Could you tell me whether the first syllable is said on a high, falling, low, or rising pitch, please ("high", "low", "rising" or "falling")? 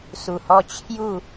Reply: low